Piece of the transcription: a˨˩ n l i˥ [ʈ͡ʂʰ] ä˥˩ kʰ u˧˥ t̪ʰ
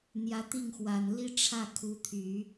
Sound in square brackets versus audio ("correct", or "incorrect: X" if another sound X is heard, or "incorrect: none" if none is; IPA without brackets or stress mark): correct